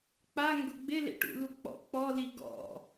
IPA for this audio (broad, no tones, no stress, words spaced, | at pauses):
k͡paŋɡʊ ɡ͡bɪlḛʈṵlu k͡pɔ̰ k͡pɔli ɡɔ̰